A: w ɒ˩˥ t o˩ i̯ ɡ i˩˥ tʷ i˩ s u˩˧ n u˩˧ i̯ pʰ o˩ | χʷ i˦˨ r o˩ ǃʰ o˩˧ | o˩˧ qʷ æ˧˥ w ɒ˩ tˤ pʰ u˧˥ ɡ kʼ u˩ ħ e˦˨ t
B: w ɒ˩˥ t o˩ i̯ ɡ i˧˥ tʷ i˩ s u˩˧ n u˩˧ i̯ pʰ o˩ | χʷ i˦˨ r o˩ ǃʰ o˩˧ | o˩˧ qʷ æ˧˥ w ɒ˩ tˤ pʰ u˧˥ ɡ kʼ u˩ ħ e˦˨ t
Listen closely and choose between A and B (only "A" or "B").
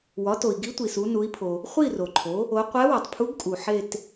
B